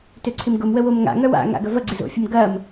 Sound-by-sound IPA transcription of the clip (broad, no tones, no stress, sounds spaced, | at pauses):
t ø ǀʰ ɪ m ɡ ʊ m w ə w o m ŋ a̰ ŋ œ w a̰ ŋ a̰ ɡ ɐ v ɐ ɡ͡ǀ ɪ z o̰ fʲ ə m ɡ ɐ m